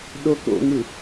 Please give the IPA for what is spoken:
ɗ o k o̰ ŋ ɯ

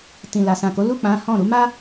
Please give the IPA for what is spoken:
t ĩ˨ l a˨ s ã˨ k o˨˦ l u˦˨ k͡p ã˨˦ h ɔ̃˦˨ ɾ u˨˦ m a˦

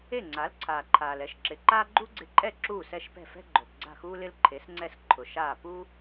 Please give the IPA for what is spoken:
e˥˩ ŋ͡ǀ a˩˥ l ǀʰ aː˩ ǃʰ aː˩ l ɛ˩˥ ʃ ǁ ɪ˩ ǃ aː˥ ɡ͡ǃ u˥ ɡ͡ǀ ɪ˧ ǃʼ ɛ˥˩ ǁ uː˥˩ s ɛ˥˩ ʃ p ɛ̤˥˩ f ɛ̤˥ ɡ͡ǃ o˩ p ɡ͡ǀ a̤˥˩ x uː˥ l ɪ˥ l ǃʰ e˩˥ s ŋ͡ǀ ɛ˥˩ s ǃʰ ʊ˩ ʃ aː˥˩ p u˥

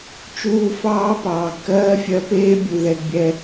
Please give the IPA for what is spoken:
t͡ʃ uː˧ f ɑː˦ p ɑː˨ ɡ k ɜː˦ fʲ ɜ˧ p eː˦ bʲ u˨ ð ɛ˧ ɡ bʲ ɛ˧

